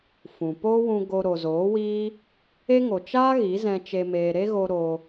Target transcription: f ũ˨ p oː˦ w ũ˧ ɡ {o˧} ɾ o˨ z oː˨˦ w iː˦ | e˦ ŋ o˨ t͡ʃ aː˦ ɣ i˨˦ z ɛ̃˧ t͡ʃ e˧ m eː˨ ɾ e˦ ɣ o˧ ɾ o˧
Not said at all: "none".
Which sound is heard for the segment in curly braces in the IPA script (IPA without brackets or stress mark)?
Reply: o˧